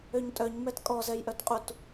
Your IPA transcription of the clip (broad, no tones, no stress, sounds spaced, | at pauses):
ø ɲ tʼ œ ɲ m ɛ t kʼ ɔ z ɛ j ʔ œ t qʼ u t